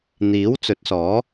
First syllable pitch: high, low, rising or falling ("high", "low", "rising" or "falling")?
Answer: rising